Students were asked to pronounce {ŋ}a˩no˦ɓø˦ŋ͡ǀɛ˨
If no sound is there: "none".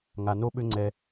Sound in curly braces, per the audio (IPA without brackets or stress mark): ŋ